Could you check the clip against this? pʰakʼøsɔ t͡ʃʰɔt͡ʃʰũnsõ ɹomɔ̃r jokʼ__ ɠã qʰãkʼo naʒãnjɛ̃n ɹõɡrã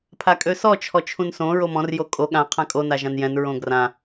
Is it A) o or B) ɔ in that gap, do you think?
A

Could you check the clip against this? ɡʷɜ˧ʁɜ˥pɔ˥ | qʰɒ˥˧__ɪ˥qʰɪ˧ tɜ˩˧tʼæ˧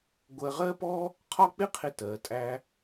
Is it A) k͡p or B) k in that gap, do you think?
A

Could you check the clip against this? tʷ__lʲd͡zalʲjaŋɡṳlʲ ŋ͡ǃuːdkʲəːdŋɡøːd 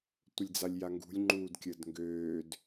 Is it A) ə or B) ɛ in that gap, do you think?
A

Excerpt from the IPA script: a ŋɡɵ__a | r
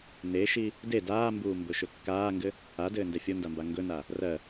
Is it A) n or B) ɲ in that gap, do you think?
A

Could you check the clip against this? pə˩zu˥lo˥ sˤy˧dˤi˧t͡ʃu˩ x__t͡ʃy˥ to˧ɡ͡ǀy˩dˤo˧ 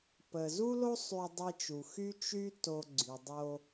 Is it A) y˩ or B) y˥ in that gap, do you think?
B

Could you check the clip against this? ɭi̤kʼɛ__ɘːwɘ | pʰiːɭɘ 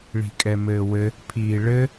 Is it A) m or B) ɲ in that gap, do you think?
A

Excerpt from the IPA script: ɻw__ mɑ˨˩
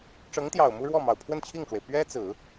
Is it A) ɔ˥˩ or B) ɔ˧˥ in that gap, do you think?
A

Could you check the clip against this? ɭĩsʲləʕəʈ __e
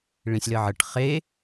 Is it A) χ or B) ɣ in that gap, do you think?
A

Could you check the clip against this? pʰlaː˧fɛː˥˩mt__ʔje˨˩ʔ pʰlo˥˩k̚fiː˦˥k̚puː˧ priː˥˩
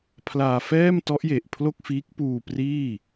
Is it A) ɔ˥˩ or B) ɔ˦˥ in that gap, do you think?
B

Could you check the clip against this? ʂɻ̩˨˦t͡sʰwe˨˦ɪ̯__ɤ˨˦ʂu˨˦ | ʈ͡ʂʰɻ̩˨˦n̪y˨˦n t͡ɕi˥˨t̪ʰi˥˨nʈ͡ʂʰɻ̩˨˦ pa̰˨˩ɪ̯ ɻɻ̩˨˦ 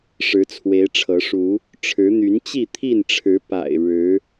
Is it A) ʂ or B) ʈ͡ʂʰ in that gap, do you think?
B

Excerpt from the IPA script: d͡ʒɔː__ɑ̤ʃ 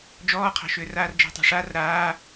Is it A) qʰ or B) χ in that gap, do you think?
A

